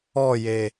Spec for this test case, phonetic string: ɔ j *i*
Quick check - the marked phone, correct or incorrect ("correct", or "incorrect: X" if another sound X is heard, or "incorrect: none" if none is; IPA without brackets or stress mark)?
incorrect: e